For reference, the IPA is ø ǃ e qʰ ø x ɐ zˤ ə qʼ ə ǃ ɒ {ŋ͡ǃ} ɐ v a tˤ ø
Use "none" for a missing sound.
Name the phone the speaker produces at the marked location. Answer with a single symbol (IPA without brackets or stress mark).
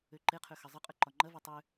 ŋ͡ǃ